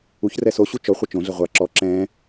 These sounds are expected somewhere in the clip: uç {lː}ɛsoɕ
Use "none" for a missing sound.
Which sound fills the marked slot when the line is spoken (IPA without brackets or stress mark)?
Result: r